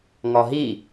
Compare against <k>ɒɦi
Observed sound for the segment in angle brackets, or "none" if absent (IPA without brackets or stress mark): ŋ